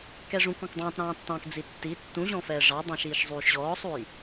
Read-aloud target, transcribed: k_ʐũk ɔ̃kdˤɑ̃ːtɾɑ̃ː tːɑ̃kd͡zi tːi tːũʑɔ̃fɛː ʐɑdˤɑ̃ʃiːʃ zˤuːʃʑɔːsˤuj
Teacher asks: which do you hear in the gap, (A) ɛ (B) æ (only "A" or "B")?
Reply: A